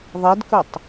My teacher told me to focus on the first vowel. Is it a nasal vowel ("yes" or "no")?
no